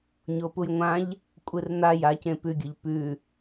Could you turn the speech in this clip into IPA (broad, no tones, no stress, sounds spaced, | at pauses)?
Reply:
ɲ o p u j ŋʷ ã ʎ | kʷʼ ɨ r n̪ a j a c ẽ p ʉ ɡʲ ɵ ʎ p ʉ